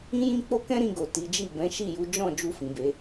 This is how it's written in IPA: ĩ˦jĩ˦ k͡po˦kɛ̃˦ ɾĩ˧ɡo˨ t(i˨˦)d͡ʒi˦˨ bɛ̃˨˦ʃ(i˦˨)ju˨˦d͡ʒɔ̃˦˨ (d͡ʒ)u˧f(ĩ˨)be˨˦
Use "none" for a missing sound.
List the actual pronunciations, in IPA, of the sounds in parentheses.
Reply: i˨˦, i˦˨, d͡ʒ, ĩ˨

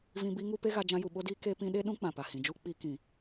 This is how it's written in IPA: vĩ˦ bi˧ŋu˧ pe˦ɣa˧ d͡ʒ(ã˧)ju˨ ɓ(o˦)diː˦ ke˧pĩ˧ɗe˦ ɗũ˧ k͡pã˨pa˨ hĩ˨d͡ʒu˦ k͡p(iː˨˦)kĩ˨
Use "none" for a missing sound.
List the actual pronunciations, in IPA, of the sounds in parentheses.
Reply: ã˧, o˦, i˨˦

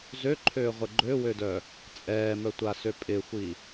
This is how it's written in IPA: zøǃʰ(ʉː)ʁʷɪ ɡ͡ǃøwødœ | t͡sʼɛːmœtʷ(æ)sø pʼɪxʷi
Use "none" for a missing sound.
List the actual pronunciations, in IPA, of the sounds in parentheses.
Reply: øː, a

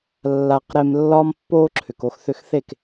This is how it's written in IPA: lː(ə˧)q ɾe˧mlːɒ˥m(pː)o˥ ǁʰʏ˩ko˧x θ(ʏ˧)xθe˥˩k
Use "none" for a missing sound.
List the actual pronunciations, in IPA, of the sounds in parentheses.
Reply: a˧, pː, ʏ˧

